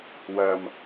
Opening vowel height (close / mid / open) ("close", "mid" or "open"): open